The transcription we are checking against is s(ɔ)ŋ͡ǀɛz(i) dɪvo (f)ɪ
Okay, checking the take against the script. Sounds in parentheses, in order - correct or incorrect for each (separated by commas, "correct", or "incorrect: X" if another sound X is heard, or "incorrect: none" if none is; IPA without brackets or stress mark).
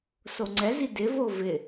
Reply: incorrect: o, correct, incorrect: v